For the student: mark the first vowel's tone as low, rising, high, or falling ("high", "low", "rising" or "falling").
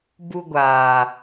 high